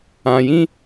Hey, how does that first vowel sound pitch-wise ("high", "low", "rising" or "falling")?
low